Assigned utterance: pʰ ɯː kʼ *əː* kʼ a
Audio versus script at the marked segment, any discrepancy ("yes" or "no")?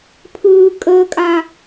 no